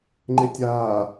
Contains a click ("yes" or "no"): yes